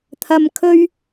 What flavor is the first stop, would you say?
aspirated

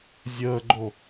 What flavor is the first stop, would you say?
click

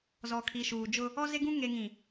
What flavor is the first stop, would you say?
aspirated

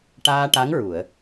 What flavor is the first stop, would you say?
plain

